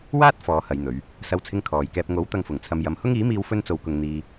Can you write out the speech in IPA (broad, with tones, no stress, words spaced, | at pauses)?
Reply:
waː˥t̚ fɔː˨˧hɐ˨˧jn̪ɵ˨˧ɥ | sɐ˧wt͡sʰɪ˧ŋ kʰɔː˨jkɛː˧p̚ ŋo˨˥w t̪ɐ˧ŋfʊ˨˩ŋt͡sʰɐ˧m jɐ˨˧mhʊ˥ŋ iː˨˥miː˧w fɵ˥nt͡so˧wkʊ˧ŋ n̪iː˧